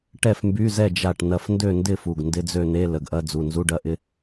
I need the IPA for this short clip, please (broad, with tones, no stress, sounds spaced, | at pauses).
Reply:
ʈ ɛ˥˨ f m b y˧˥˧ z ɛ˥˨ d͡ʒ a˥˨ ʈ n ɐ˥˨ f n d ø˥˨ n d ɪ˥˨ f u˩˧˩ ɡ n d ɪ˧˥˧ d͡z ø˥˨ n e˧˥˧ l ə˩˧˩ ɡ ʔ ɐ˧˥˧ d͡z u˩˧˩ n z u˧˥˧ ɖ ɐ˧˥˧ ʔ ɪ˧˥˧